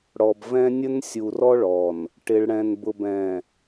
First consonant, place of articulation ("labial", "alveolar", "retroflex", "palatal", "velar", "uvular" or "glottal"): retroflex